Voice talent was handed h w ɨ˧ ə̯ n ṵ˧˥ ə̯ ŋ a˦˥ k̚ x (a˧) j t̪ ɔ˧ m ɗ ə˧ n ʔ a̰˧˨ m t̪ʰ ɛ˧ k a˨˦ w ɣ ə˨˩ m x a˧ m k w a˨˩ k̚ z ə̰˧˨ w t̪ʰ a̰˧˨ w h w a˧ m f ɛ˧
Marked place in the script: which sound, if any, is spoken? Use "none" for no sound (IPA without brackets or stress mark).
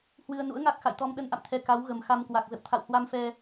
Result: a̰˧˨